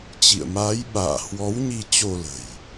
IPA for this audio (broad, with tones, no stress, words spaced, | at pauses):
t͡ɕḭ˧˨ə̯maː˨˦j ɓa̰ː˧˨ hwɔ˨˦wɲi˧ t͡ɕo˧lə̤˨˩j